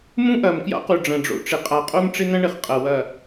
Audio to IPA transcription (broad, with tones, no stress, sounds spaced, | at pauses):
m ũ˦ ʔ ɐ˨ m k j a̰˦ q u˨ ɖ͡ʐ ɐ̃˨ ɖ͡ʐ o̰˦ ʈ͡ʂ ɪ˨ qʼ a˨ qʼ o˦ m ʈ͡ʂ ɪ˦ n ɐ̃˦ ɳ ɪ˨ χ qʼ ɐ˨ w ɐ˨